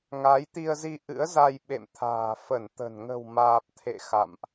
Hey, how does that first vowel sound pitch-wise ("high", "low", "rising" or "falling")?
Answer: rising